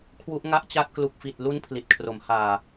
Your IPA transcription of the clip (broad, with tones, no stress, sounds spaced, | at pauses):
kʰ w u˦˥ ʔ ŋ a˦˥ ʔ t͡ɕ a˦˥ t̚ k l u˨˩ k̚ f i˨˩ t̚ l u˦˥ n pʰ l i˨˩ t̚ kʰ r o˩˦ m h aː˨˩